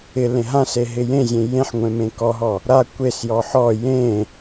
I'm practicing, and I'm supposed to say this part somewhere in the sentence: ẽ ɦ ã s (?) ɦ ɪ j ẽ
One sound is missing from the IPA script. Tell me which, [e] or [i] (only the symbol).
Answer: e